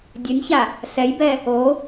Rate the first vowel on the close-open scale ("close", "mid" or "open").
mid